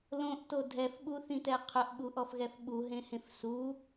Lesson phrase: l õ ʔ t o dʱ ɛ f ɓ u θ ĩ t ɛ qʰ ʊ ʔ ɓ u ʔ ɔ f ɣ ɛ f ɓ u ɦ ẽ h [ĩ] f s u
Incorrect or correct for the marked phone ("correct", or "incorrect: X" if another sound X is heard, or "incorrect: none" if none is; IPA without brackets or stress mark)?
incorrect: ẽ